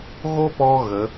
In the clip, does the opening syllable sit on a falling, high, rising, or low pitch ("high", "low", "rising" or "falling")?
high